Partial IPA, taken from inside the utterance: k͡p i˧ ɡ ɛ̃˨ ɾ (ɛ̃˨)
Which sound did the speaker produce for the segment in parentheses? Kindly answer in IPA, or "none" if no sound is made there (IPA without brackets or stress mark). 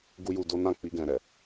ɛ˨